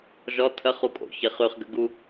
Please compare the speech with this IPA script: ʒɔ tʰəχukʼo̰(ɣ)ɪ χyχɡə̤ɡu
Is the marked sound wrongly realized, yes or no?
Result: yes